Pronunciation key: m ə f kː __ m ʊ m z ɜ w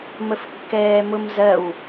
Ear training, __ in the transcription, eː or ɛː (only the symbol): ɛː